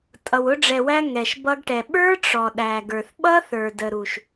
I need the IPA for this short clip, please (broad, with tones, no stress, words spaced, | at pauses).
tʼʌ˨wʊ˧ɖ͡ʐɛ˨wæ˧ ŋɛ˨ʃbʌ˧ɡʈɛ˨ ɓə˞˦ʈ͡ʂɔ˨ɗæ˨ ɡə˞˨θɓʌ˦θə˞˨ də˨ ɾu˨ʃ